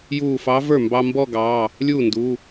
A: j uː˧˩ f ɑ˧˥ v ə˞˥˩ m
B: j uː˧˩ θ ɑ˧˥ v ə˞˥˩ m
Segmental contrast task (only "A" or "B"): A